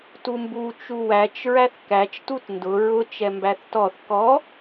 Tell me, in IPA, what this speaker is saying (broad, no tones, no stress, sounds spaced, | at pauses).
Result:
t u m b u t͡ʃ u w æ t͡ʃ ɹ æ θ k æ t͡ʃ t u t n d ʊ ɹ ʊ t͡ʃ ɛ m b æ θ t ɔ θ k ɔ